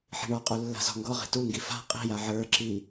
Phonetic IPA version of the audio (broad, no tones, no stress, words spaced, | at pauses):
ħi̤ɳɔqʼu lːa̤zɔ̤ŋɡɔʁi̤ tuŋɡi fa̤ qʼi̤ja ʕə˞ǁi